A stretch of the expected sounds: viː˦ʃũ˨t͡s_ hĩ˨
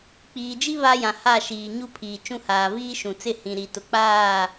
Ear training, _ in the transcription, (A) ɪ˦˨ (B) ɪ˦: A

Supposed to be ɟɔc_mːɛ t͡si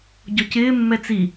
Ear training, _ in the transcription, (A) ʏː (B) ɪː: B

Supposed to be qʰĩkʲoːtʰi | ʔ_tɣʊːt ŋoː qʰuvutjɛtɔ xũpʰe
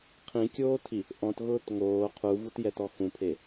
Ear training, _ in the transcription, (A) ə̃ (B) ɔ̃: B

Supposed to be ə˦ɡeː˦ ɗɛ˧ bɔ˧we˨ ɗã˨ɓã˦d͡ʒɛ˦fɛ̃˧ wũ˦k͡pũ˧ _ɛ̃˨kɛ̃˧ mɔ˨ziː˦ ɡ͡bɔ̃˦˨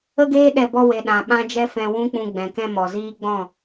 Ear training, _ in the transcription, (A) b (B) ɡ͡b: B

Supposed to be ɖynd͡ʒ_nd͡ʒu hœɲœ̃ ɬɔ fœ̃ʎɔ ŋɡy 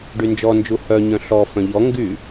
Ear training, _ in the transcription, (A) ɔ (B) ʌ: A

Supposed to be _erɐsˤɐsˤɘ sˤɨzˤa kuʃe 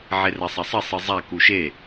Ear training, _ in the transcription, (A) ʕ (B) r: A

